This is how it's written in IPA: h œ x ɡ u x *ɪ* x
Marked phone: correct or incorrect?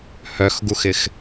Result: correct